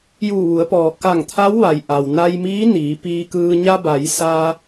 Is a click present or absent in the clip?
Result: absent